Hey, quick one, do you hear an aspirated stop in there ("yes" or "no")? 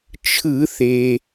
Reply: yes